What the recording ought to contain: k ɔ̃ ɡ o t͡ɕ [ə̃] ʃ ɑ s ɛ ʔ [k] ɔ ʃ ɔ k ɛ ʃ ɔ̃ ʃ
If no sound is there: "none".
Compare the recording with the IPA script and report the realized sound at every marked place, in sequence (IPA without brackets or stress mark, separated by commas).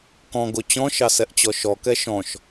ɔ̃, t͡ɕ